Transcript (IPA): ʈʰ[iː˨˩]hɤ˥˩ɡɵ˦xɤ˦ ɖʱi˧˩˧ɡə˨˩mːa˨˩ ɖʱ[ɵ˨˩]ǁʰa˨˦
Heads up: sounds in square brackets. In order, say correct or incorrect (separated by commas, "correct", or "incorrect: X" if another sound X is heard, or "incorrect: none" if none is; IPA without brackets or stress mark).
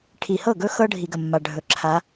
incorrect: i˨˩, correct